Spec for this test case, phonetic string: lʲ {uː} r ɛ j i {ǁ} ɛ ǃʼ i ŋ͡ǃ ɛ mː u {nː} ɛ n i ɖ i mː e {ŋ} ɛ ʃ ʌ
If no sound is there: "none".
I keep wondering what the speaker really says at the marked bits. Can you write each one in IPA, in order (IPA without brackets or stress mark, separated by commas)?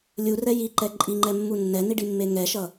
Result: u, ǃ, nː, ŋ